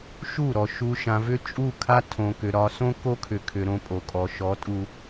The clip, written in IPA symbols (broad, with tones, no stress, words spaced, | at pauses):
ʃu˦˨ɾɔ˨ ʃu˨ ʃã˨vʏ˦ t͡ʃʼu˦˨kʰa˦ tʰõ˨kʏ˨ ɾɒ˨sõ˦ ko˦kʰʏ˨kʰʏ˨ ɾõ˦pʼo˨kʼɔ˨ ʃɔ˨˦tʼu˨